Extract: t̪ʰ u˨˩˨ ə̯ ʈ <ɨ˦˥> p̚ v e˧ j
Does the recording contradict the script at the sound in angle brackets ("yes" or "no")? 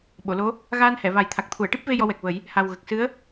yes